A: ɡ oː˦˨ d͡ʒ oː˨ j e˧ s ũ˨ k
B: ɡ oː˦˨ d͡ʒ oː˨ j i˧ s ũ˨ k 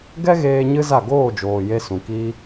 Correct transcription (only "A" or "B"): A